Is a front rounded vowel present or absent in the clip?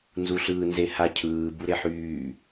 present